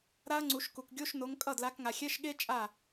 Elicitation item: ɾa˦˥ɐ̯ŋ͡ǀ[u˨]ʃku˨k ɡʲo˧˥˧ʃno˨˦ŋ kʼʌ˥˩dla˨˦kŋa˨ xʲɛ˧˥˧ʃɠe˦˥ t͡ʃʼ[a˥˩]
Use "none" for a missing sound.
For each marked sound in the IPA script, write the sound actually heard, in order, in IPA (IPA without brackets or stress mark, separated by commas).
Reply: u˨˩˦, a˥˩